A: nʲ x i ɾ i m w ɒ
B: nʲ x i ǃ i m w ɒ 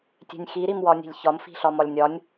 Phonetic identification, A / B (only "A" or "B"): A